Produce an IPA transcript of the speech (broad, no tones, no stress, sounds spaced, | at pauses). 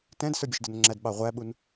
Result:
t ɛ̃ d s ə˞ bʲ ə ʃ d ə n ŋ͡ǁ æ d ɓ ɑ ʁʷ æ ɓ u n